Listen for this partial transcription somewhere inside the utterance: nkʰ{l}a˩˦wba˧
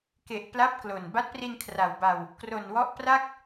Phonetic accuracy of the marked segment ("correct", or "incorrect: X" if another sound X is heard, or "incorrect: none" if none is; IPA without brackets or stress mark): incorrect: r